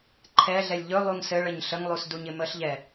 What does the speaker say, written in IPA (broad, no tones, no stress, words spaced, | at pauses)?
ǃʰɛɮɛlʲ ʎɵ lˠuŋsɘɭəɲ ɬəŋlˠus duɲɪməɬʎɛ